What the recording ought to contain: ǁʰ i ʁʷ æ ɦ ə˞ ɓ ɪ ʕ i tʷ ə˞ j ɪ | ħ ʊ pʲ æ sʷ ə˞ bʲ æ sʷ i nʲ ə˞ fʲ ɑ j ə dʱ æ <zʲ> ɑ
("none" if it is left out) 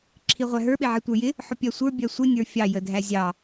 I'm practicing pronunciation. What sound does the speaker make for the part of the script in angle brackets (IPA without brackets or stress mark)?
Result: zʲ